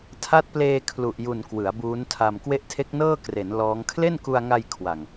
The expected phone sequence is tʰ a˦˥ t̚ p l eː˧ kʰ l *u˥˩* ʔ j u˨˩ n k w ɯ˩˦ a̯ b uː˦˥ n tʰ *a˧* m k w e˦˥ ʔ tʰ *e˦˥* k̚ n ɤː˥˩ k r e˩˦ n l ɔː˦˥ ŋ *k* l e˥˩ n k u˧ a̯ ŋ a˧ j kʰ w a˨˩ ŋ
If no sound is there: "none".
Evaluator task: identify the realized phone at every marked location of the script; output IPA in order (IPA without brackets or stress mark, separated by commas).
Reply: u˨˩, a˧, e˦˥, kʰ